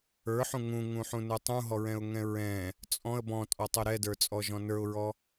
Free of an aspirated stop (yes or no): yes